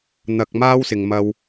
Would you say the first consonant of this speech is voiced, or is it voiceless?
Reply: voiced